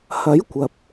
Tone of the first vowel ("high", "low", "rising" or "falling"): rising